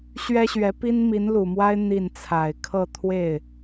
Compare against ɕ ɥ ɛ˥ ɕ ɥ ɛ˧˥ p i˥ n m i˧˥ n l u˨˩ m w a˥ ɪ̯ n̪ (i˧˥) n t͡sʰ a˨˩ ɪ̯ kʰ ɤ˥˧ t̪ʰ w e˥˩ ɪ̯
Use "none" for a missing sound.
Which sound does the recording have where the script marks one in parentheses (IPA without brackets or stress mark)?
i˥˩